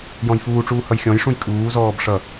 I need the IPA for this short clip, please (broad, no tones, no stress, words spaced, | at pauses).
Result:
jɔ̃jfuːʈ͡ʂuː hʌjxʲɔ̃jʂũj kʼuːzɔːb ʂʌ